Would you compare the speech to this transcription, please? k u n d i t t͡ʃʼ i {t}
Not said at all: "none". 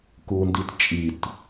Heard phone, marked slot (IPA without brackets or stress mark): t